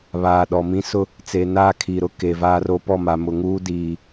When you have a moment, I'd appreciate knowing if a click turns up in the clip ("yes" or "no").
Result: no